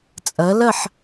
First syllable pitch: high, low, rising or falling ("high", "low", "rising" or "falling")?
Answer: rising